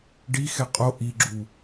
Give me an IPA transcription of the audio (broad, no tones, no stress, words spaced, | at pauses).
ɖixɛ qʼo ʔiɡ͡ǁu